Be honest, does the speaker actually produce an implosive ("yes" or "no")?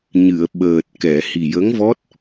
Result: yes